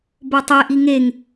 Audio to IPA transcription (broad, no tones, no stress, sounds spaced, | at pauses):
b o tˤ e ʔ i ŋ e ŋ